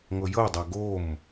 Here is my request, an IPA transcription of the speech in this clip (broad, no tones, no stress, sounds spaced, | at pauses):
ŋ ɤ j ɤ dˤ a ɡ o m